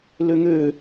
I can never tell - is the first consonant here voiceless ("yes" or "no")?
no